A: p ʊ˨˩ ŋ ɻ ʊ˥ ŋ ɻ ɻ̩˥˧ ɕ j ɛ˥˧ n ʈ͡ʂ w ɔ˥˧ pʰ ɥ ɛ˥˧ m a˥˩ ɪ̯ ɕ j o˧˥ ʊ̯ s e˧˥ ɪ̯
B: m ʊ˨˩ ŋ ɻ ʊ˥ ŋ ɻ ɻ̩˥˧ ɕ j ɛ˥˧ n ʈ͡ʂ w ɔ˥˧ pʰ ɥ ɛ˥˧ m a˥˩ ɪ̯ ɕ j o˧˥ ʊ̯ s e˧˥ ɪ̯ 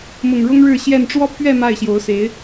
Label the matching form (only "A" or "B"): B